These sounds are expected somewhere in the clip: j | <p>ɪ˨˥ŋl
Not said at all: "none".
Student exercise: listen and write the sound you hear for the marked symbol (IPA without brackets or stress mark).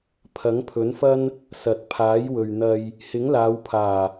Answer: h